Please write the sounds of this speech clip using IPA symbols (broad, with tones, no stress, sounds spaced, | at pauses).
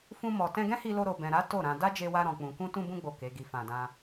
f ũ˧ m ɔ˨ t ɛ̃˧ ɡ ɛ̃˦ h i˧ l o˧ ɾ o˨ b ɛ̃˨ ɾ a˨˦ t o˦˨ ɾ ã˧ d a˦ d͡ʒ e˧ w a˧ ɾ ɔ̃˨ k͡p ũ˨ k ũ˧ t ũ˧ b ũ˧ ɡ͡b o˨ k e˨˦ ɡ i˧ f ã˧ d ã˦